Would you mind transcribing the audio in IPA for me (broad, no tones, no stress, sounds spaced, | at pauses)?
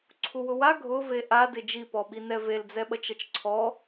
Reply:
ǀʰ u w ʊ w a ɡʱ ʊ v e ʔ a d ɪ d͡ʒ i p ɔ ɓ i n ɛ v e l d͡z ɛ ɓ ʌ t͡ʃ ʌ t͡ʃ ǀʰ ɔ